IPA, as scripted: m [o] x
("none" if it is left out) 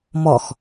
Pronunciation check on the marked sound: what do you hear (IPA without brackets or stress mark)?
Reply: ɔ